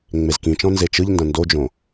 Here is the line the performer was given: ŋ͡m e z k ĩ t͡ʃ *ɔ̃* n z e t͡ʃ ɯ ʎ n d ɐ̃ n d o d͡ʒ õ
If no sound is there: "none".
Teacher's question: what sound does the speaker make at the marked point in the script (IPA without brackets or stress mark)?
ɔ̃